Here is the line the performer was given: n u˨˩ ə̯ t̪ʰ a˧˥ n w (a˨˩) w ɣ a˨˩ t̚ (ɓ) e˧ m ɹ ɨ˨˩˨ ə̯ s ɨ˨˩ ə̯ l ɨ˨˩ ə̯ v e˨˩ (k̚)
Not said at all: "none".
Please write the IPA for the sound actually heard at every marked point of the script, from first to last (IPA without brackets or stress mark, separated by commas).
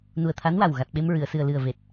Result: a˨˩, ɓ, t̚